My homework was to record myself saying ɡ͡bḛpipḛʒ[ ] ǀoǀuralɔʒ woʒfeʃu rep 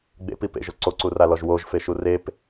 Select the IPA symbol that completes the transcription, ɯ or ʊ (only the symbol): ʊ